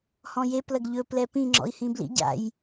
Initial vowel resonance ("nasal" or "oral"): nasal